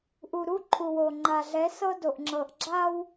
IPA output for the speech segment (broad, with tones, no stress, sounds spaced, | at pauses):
ʔ u˨ ɾ u˦ ǃʰ u˨ w o˨ ŋ͡ǃ a˨ ɮ ɛ˨˦ s ɤ˦ d o˨ ʔ ŋ͡ǁ ɤ˨ ʔ ɡ͡ǁ a˦ w